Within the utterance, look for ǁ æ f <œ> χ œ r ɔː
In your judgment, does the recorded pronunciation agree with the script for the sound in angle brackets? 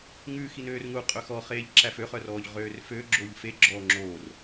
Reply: no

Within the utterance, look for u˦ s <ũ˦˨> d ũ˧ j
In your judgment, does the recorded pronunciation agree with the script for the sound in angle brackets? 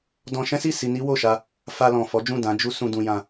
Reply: no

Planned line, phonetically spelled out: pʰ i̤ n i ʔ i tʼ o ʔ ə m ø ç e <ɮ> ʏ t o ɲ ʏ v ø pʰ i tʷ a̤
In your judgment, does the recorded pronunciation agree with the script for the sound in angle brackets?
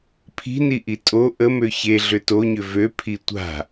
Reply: yes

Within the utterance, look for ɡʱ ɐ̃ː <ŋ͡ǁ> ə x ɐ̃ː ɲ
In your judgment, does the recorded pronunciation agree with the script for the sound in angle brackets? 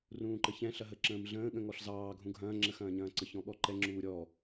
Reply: yes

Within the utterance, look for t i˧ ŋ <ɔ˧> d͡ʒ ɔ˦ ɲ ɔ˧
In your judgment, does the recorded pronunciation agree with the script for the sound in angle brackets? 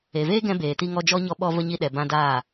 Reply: yes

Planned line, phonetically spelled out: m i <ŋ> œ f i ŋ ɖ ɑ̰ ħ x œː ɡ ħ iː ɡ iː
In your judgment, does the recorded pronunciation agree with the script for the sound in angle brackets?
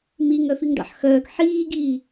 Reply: yes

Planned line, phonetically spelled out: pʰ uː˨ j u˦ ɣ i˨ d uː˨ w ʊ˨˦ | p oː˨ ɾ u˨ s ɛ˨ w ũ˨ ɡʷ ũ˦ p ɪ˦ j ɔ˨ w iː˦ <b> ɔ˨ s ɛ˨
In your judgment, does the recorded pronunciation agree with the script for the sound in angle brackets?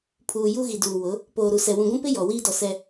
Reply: no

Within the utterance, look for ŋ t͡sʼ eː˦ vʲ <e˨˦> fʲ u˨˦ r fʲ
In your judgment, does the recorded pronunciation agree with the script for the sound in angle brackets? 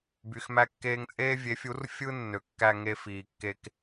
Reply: yes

